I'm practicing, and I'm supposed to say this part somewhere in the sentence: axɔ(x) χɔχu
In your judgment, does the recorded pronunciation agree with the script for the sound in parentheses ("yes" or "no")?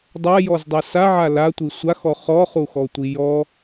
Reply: no